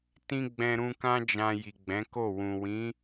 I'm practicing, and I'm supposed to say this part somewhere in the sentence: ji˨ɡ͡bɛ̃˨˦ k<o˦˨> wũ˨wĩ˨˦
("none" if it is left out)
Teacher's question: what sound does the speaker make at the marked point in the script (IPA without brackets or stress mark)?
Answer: o˦˨